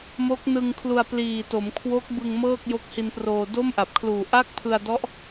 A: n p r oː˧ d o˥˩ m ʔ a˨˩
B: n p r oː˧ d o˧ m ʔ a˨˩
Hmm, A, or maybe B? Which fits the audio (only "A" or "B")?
A